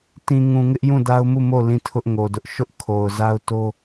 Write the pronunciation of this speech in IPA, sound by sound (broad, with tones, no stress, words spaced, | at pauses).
tĩ˨ ŋũ˨ŋɪ˦ʔ jũ˦˨da˦ʊ̯mu˦˨mo˦˨ lĩ˦˨tʰʊ˦ʔŋo˨dʊ˦ʔ ʃʊ˦ʔ kʰo˨ʊ̯za˦ʊ̯to˦